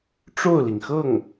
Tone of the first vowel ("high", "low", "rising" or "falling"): falling